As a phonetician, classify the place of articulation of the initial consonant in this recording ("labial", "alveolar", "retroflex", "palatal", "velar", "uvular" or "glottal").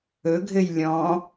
velar